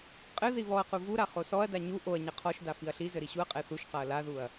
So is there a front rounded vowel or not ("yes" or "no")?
no